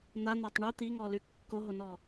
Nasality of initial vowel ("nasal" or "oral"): oral